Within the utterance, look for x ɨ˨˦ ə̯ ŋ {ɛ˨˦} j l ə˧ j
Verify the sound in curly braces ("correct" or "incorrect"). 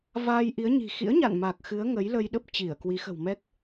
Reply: incorrect